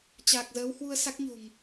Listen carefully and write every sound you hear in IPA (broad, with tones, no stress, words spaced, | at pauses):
t͡ɕaː˨˩k̚zəː˨˦w hwu˧ə̯ sa˦˥k̚ɲo̤˨˩ŋ